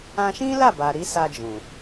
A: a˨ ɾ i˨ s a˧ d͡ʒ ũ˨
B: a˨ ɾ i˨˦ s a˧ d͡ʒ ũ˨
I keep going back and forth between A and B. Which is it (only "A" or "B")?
B